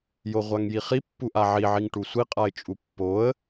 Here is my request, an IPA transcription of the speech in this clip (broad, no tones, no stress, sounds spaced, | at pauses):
j o ʁʷ a ŋ j i χ i pː u ʔ a ʕ i ʕ i ŋ ʈ u sʷ i qʼ a ɪ̯ t͡ʃʼ u pː o ə̯